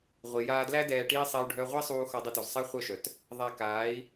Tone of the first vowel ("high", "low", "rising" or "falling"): low